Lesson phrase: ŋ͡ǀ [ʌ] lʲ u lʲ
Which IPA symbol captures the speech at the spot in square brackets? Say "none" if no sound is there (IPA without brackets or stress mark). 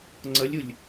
ʌ